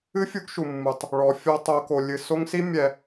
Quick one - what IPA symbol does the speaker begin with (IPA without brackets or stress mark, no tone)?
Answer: ɨ